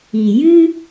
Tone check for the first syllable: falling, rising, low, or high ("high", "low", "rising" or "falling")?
low